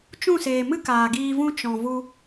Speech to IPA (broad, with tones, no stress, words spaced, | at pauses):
t͡ʃũ˦˨seː˨mɨ˦ kaː˨ɡiː˧vũ˦ t͡ʃɔ̃˨ vu˧